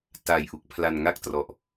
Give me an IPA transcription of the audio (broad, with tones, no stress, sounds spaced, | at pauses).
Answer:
t a˨˩ j ʔ u˨˩ k̚ pʰ l a˧ n ŋ a˥˩ k̚ t r ɔ˨˩ ʔ